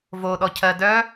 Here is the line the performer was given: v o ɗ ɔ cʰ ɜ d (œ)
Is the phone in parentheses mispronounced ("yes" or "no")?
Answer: no